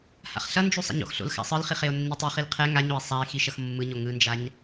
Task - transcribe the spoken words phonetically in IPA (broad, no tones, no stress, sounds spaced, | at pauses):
h a̰ χ ɬ ʌ n d͡ʒ u sˤ a̰ ɲ o̰ x ɬ o̰ l x a̰ sˤ ɯ l χ i χ e o̯ nː i tˤ i χ i l qʰ ɛ ŋ a ɲ o e̯ sˤ a e̯ x i ʃ ʌ x mː ɯ ɲ o ŋ ɯ n d͡ʒ a ɲ